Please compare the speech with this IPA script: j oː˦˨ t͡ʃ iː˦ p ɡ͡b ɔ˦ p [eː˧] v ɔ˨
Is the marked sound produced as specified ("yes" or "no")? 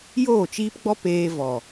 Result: yes